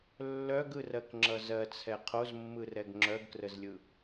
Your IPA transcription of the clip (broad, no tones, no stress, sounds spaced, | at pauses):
lː œ ɡ ɯ r ɜ k ŋ͡ǁ ʌ z ɜ t͡sʰ ɛ qʰ o z mː ɯ r ɛ ɡ ŋ͡ǁ œ ɡ k r ə z lʲ ɯ